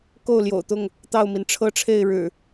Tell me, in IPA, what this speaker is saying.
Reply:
k o˥˨ ʊ̯ l j o̰˨˩ ʊ̯ t̪ ʊ˥˨ ŋ | t̪ ɑ˥˨ ʊ̯ m i˩ n ʈ͡ʂʰ ɤ˦ ʈ͡ʂʰ e˥˨ ɪ̯ ɻ ɻ̩˨˩

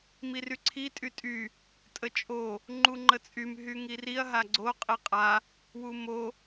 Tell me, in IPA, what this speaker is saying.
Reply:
m i r y ǀʰ i tʼ y tʼ y | tʼ ə t͡ʃʼ o | ŋ͡ǃ u ŋ͡ǃ ə t͡sʼ y m ɦ y ŋ i r i ɐ̯ ɦ a ɡ͡ǀ o qʼ i qʼ a | w u m o

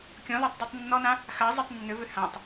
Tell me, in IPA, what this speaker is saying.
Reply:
kʲ ɔ̃ l a tˤ dˤ æ tˤ nː ɔ n ã | x a zˤ ɜ tˤ nː ʏ v ʏ h ã tˤ

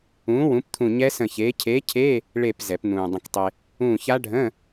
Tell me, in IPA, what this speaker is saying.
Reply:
ũː˨˥ w ũ˨˥ p t̪ʰ ũ˦˨ ɲ ɛ˦˥ s ə̃˦˨ ç eː˨˥ cʰ eː˨˥ cʰ eː˧˥˧ | ɭ e˦˨ p z ɛ˨˩˦ p n̪ ũː˨ dˤ ə̃˨ k tˤ e˨ | ũː˦˨ ç a˦˥ ɖʱ ə̃ː˧˥˧

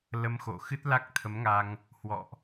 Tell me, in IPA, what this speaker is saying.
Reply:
l ə˧ m x o̰˧˨ x ɨ˦˥ t̚ l a˦˥ k̚ t̪ʰ ə˨˦ m ŋ a˧ ŋ | h w ɔ̰˧˨ ʔ

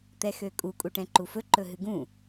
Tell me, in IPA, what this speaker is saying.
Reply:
t̪ ɛ x ø kʼ u kʼ u ʈ ɛ̃ ǃ u f ɵ ǃ ɵ ɦ ɨ ɡ ũ

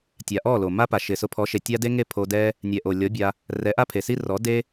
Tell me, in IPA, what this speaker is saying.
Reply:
tʲ a˨ ʔ ɔ˦˨ l o˨ m a˦ p a˨ ʃ ɪ˨ s ʊ˧ pʰ ɔ˨˦ ʃ e˨ tʲ a˦ d e˦ ŋ e˦˨ pʰ o˧ d ɛ˦ | nʲ ɛ˨ ʔ o˨ lʲ ɔ˨˦ bʲ a˧ | r ɛ˨˦ ʔ a˦ pʰ e˨ s i˦ r ɔ˨˦ d e˦

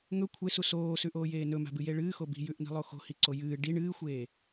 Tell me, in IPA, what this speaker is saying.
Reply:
ŋ ɵ kʷʰ e s u s oː s ʉ ʔ oː j eː n ɵ m a̤ b ɨ j e ɭ ɨː x o b i̤ j ʉ ʔ n i̤ lˠ o x o̤ h i ǀ o j ɨː ɖ i ɳ ɨː xʷ eː

